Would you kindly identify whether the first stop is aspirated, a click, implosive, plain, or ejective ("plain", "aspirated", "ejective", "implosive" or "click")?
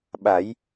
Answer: implosive